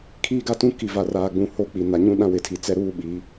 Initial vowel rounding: unrounded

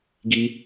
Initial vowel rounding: unrounded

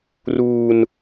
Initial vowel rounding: rounded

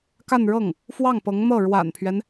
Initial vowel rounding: unrounded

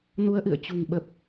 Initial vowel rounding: rounded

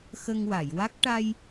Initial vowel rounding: unrounded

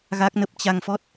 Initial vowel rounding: unrounded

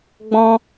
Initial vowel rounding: rounded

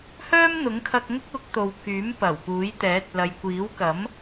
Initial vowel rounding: rounded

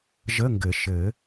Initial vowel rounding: unrounded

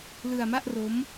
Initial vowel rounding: unrounded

